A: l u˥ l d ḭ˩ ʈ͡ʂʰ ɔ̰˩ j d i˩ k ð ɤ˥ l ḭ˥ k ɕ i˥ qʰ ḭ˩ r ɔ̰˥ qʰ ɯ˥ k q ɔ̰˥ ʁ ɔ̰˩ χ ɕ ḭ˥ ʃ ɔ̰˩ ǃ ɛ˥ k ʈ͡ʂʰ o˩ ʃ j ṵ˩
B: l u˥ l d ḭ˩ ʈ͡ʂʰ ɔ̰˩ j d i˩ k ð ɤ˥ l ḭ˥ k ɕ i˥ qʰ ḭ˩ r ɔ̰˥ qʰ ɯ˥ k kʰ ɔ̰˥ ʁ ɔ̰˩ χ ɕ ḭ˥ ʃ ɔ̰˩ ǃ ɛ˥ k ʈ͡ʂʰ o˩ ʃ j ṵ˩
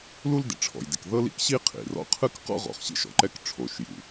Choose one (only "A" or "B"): A